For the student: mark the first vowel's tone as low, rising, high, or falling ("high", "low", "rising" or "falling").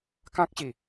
high